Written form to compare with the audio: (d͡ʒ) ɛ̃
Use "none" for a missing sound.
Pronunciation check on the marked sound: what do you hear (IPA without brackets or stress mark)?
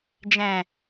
d͡ʒ